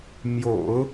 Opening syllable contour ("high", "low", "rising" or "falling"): low